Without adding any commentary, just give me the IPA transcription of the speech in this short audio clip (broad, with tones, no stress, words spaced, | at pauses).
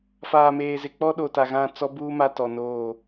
faː˨meː˨zɪ˨k͡pɔ˦ ɗo˨ta˨ɣã˦˨t͡sɔ˦ buː˦ ma˦tɔ˨noː˦˨